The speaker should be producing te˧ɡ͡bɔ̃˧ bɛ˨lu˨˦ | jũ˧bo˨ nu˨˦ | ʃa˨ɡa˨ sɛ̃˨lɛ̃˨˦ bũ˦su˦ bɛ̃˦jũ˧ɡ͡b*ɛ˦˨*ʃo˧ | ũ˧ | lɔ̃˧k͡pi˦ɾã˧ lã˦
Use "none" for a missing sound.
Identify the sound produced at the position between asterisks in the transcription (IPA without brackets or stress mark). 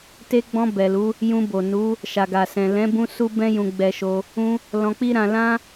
ɛ˧